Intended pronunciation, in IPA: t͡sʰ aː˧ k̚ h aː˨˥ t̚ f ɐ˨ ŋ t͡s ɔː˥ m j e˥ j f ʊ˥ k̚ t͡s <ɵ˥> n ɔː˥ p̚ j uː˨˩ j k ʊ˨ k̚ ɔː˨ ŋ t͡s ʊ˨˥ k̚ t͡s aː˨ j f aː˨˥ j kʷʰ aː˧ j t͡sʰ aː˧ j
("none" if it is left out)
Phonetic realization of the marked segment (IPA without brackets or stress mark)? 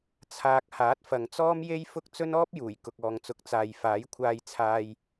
ɵ˥